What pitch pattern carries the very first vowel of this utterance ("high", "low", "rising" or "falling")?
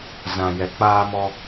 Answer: low